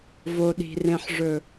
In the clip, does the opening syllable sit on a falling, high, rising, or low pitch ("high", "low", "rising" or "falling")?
low